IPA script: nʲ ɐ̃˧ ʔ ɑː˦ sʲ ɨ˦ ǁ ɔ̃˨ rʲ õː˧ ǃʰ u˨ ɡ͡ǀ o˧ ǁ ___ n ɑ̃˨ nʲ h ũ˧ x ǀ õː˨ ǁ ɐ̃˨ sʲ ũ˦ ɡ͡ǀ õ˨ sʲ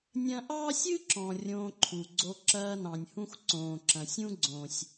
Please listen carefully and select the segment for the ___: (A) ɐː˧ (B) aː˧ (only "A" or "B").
A